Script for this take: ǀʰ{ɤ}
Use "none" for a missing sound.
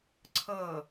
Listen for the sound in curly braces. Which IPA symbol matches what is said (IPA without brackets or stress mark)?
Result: ɤ